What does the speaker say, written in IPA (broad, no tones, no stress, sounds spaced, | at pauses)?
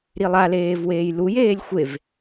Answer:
ɾ i lˠ a l eː v w eː j l u j eː lʲ xʷ e v